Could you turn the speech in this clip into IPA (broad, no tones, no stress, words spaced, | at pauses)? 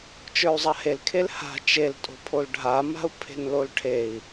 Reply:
t͡ʃə˞u̯zˤahel kʰelha̤ t͡ʃeltʼo̤ pʰolɖʱama̤u̯ pʰe̤nlolʈʰei̯